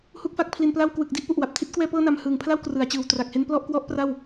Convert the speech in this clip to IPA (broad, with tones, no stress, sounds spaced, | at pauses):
h u˥˩ k̚ f a˥˩ k̚ pʰ l i˧ n p l a˥˩ w k w ɯ˨˩ k̚ d i˥˩ ʔ p u˨˩ ʔ w a˨˩ p̚ tʰ i˦˥ t̚ k w ɛː˥˩ p ɤː˥˩ n a˧ m h ɯː˨˩ ŋ pʰ l a˥˩ w k r ɯ˩˦ a̯ t͡ɕ ɯː˨˩ w t r a˨˩ k̚ h e˦˥ n p l ɔ˥˩ ʔ k w ɔ˦˥ ʔ p r a˥˩ w